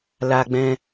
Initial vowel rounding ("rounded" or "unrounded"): unrounded